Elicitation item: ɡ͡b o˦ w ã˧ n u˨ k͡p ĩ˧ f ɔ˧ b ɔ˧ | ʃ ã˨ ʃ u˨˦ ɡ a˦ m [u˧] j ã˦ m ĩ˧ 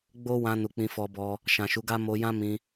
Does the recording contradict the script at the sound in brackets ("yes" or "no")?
yes